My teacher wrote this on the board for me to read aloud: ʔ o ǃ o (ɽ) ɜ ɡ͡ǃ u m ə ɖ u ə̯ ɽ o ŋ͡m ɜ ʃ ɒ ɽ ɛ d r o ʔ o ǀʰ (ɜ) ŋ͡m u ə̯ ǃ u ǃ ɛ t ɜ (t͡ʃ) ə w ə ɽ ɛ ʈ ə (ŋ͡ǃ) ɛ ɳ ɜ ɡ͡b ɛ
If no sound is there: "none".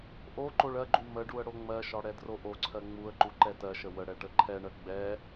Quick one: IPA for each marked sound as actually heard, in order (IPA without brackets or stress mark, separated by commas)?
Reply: ɭ, ɜ, ʃ, ǃʰ